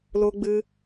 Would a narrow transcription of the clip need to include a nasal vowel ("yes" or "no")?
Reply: no